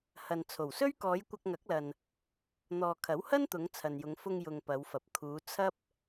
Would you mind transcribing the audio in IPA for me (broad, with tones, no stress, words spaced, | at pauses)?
hɐ˨n t͡sʰo˨˩wsɵ˥ɥ kɔː˨˧j kʷɐ˧k̚ŋɐ˨˥k̚lɐ˨n | n̪ɔː˨kʰɐ˨˥whɐ˥nt̪ʊ˨˧ŋ t͡sʰɐ˨njʊ˨˧ŋ fʊ˧ŋjʊ˨ŋ pɐ˨˧wfɐ˨p̚ kʰuː˨˧ t͡sʰɐ˥p̚